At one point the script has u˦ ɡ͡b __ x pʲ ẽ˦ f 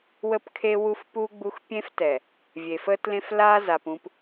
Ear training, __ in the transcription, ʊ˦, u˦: u˦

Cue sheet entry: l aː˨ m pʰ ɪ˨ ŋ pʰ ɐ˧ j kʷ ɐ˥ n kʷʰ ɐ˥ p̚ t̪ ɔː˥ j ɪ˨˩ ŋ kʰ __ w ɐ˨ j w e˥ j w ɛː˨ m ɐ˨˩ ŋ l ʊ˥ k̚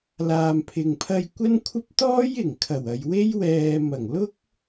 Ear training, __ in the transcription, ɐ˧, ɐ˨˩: ɐ˨˩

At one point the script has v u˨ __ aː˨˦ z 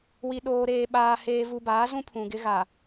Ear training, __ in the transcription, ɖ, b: b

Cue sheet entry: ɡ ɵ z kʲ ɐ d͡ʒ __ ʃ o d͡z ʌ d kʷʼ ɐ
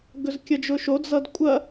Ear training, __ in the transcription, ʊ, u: ʊ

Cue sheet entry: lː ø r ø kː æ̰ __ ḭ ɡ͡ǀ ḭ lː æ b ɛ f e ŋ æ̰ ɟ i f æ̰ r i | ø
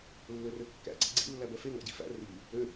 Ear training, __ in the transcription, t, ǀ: ǀ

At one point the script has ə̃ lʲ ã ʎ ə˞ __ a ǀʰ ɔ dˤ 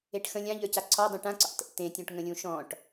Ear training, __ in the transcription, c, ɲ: c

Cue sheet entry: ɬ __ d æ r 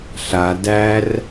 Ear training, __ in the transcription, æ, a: a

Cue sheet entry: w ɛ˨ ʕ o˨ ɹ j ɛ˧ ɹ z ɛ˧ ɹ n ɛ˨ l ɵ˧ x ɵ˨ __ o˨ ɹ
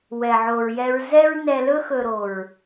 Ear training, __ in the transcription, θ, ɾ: ɾ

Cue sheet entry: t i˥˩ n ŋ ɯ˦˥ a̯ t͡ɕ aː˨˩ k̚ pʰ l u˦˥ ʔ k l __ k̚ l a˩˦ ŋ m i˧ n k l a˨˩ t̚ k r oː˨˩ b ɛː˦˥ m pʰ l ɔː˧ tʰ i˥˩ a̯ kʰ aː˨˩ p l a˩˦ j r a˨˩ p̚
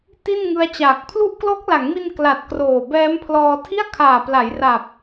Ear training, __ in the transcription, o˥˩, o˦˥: o˦˥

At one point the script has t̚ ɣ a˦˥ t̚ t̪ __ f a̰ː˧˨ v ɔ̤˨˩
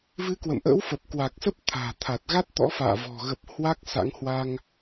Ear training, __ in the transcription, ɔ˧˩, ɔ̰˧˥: ɔ̰˧˥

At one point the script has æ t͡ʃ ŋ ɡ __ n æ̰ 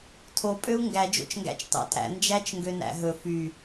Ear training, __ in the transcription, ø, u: ø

